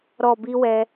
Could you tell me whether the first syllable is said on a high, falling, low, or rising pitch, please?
low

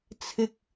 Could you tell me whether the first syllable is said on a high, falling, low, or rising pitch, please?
low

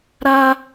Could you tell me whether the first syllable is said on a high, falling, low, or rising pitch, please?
high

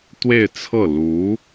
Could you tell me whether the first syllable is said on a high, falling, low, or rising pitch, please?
falling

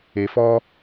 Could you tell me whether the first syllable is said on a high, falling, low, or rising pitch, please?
low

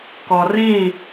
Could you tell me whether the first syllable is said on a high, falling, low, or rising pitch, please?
low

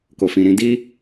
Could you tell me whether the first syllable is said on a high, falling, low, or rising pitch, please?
low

